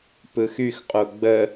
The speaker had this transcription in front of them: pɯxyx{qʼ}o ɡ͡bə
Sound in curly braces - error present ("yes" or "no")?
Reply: no